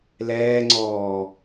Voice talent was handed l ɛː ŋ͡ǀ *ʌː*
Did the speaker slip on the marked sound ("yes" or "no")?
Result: yes